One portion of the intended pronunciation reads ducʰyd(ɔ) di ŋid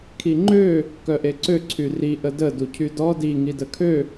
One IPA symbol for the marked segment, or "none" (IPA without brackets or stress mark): ɔ